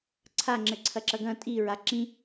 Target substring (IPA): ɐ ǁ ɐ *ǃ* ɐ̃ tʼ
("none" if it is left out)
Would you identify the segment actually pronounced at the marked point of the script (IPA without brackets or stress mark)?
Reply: ɡ